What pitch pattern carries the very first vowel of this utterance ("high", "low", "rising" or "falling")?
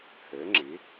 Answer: rising